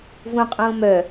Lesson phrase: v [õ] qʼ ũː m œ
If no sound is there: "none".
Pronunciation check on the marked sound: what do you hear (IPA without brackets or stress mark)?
ũ